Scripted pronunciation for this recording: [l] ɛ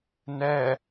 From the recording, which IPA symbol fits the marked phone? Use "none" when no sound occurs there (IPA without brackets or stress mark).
n